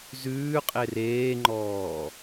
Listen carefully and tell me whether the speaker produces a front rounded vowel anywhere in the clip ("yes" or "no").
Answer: no